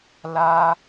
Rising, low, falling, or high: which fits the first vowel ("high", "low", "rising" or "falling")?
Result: high